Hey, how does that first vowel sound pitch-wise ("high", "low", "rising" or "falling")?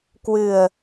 low